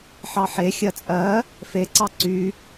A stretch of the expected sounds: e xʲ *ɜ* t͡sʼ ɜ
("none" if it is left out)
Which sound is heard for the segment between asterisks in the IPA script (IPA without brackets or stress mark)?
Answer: ɜ